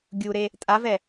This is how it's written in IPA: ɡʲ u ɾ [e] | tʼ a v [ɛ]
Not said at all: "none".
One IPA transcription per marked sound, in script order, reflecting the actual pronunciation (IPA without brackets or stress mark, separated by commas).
e, ɛ